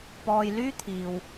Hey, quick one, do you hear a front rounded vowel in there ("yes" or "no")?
yes